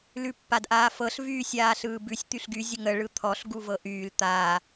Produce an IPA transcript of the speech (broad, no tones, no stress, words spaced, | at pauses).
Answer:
lʉpːadʔaːfɤɬ vyːsʲaːɬɯːbʉsʲ t̪yɬɡy zʲəŋə ɭɯt̪ʰɔɬ ɡuvɤʔyːl t̪aː